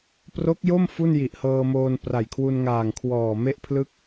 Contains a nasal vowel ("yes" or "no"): no